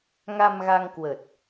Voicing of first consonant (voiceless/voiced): voiced